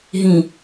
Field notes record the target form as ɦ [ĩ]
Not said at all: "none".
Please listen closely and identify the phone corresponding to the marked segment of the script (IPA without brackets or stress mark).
ĩ